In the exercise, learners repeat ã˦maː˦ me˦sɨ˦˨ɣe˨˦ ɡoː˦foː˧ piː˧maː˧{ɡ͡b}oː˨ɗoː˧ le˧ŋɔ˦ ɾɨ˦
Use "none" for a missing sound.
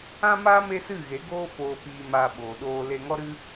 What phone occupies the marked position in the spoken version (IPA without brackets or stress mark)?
ɓ